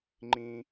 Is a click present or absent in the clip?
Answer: present